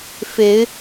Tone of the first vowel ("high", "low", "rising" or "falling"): rising